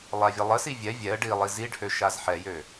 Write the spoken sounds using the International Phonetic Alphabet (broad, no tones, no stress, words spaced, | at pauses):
lˠavʲəlˠəsi vʲɛ vʲɛə̯ ɖi lˠiziɖhø ʃazħɛjø